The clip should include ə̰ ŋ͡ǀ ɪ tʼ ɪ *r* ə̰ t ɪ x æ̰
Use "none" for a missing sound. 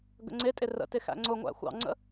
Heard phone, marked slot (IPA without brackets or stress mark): r